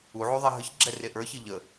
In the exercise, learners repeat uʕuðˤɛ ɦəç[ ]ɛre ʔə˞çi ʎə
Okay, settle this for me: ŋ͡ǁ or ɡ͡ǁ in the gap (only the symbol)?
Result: ɡ͡ǁ